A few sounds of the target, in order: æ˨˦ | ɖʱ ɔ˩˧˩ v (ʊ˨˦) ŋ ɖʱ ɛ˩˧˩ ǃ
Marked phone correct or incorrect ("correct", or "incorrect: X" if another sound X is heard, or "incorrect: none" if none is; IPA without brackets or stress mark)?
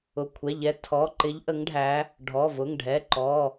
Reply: incorrect: ʊ˩˧˩